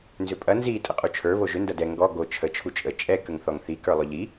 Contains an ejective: yes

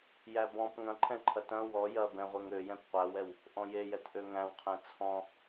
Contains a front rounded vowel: yes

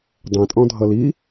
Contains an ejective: yes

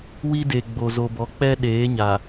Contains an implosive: yes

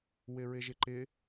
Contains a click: yes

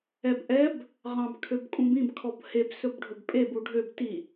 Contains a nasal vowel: yes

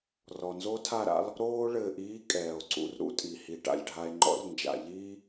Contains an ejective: yes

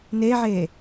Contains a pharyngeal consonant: yes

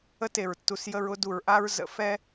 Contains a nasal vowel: no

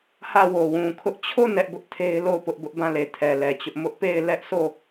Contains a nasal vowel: yes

